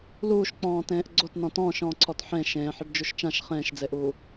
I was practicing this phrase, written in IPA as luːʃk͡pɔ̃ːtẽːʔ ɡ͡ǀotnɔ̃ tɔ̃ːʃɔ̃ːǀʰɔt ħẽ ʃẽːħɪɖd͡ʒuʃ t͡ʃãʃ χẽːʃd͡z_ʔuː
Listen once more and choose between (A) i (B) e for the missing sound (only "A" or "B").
B